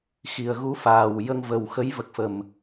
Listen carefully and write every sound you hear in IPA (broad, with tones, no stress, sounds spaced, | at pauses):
x i˨˩ ə̯ ɣ u˧˥ f aː˨˩ w j ə˧ ŋ v ə˨˩ w x ə˧˥ j v ə˨˩ k̚ f ə˨˩ m